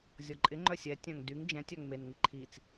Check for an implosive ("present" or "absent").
absent